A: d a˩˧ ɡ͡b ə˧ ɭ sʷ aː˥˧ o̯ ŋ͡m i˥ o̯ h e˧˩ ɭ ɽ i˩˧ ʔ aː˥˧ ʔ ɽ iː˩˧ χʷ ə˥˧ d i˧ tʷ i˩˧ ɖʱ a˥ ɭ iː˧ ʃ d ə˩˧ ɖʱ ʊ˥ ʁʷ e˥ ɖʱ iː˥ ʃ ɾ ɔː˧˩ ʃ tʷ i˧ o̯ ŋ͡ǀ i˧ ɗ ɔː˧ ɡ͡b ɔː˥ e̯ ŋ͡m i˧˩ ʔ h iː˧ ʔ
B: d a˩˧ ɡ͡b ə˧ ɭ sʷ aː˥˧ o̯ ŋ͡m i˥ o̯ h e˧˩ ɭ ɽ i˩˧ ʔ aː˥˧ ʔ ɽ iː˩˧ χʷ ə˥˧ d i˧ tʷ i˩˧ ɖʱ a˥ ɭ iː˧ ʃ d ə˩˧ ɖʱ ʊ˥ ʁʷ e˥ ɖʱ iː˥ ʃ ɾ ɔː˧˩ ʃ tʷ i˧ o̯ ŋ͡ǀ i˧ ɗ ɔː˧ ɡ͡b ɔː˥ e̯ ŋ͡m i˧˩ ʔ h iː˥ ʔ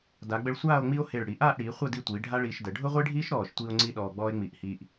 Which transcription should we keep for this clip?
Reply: A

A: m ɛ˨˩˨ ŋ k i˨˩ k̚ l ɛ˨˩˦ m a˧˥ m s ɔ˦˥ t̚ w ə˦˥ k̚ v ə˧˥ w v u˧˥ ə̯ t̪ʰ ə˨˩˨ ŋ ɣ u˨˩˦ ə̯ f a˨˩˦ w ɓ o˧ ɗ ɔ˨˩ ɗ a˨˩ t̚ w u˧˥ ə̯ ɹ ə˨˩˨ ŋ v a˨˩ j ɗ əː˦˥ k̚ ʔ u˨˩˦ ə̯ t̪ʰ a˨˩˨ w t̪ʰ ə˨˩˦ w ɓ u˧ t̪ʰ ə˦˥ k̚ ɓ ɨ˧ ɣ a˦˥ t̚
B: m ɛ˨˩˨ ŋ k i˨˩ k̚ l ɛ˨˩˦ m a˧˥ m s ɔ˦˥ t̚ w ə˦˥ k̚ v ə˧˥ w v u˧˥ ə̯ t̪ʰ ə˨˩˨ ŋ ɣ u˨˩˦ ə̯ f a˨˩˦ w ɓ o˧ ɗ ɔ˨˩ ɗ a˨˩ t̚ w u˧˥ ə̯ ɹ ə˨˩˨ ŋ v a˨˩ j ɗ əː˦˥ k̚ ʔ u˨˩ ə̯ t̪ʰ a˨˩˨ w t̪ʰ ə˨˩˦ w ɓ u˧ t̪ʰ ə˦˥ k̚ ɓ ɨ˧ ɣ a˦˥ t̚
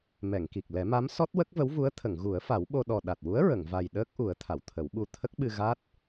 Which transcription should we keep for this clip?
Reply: A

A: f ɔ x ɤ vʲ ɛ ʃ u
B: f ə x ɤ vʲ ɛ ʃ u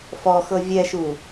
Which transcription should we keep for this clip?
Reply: A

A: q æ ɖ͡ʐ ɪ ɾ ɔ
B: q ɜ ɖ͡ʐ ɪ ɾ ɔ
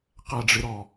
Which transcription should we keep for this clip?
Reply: A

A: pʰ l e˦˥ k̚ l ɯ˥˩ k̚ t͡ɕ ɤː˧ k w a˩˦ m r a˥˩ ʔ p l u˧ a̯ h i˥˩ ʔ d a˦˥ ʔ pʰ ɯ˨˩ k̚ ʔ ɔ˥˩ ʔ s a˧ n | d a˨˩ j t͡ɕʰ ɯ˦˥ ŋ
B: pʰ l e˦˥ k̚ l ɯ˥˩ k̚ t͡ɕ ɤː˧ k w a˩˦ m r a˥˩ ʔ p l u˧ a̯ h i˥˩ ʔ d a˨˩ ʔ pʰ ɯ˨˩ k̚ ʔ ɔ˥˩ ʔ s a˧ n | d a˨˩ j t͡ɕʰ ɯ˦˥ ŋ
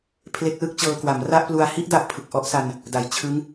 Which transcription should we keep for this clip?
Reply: A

